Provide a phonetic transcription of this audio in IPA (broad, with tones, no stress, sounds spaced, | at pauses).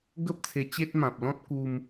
ɡ ə˦ p̚ t͡sʰ e˧ t͡ɕ e˦ t̚ m ã˨ p̚ l ɔ̃˦ t̚ k u˧ m